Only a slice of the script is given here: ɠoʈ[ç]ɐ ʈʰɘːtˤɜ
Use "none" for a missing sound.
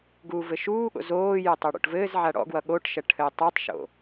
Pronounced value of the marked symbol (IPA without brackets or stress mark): ʃ